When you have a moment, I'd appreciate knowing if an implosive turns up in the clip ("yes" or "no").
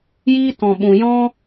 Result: yes